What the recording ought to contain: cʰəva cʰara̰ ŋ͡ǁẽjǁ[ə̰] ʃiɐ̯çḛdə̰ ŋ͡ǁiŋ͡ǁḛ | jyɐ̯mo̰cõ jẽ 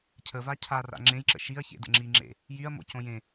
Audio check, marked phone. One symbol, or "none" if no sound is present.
ə̰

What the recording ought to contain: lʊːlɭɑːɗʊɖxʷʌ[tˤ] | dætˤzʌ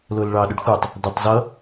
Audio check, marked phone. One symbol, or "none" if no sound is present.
tˤ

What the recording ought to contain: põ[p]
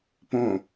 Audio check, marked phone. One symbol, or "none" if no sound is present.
none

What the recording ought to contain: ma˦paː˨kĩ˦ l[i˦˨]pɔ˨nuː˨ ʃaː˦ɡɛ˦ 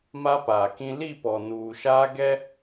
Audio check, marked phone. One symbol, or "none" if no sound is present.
i˦˨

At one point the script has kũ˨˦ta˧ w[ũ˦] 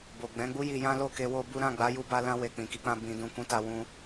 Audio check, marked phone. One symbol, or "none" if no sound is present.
ũ˧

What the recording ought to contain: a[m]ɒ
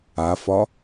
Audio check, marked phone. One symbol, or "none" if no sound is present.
f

